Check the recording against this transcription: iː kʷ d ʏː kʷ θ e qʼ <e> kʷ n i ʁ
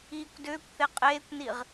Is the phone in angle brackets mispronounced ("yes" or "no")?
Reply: yes